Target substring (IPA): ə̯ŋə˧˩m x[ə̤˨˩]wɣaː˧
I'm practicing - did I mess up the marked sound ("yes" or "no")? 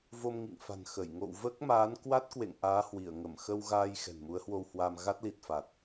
yes